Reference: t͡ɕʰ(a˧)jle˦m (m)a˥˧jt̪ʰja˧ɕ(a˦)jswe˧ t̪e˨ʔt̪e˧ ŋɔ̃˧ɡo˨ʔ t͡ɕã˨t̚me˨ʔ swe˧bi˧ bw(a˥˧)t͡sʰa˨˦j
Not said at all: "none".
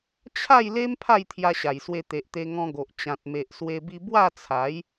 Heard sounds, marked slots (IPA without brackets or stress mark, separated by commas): a˥˧, pʰ, a˨˩, a˥˧